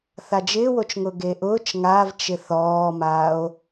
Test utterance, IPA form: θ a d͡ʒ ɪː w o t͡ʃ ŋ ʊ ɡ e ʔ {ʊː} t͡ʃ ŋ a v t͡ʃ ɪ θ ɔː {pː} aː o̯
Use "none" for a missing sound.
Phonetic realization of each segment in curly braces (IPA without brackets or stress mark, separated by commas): ʊː, m